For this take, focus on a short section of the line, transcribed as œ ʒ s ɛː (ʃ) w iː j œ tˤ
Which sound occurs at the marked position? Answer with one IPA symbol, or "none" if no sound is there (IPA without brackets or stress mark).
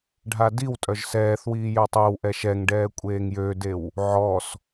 θ